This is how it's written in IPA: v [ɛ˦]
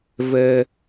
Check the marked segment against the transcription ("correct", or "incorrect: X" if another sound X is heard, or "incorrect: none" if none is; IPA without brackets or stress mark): correct